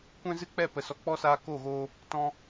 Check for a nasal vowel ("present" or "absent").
present